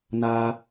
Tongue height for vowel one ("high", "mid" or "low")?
low